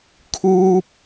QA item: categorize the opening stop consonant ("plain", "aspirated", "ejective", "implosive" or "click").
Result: aspirated